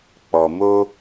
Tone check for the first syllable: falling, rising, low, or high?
low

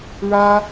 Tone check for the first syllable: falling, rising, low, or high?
high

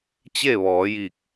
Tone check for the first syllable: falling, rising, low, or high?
falling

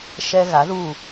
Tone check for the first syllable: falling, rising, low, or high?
high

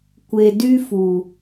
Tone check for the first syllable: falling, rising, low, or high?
low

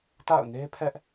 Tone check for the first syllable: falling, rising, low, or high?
falling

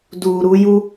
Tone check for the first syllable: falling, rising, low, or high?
low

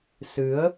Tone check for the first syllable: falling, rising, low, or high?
rising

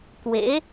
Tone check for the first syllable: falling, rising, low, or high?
rising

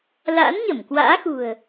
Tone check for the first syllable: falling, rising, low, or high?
rising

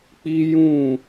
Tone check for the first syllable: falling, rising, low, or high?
high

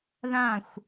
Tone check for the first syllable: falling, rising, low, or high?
falling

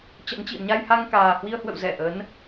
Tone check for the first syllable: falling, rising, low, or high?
rising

